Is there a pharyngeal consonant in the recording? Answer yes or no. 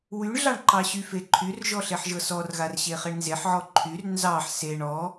yes